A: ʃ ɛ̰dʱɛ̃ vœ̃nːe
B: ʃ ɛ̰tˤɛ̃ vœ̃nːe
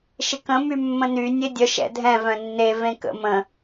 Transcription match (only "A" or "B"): A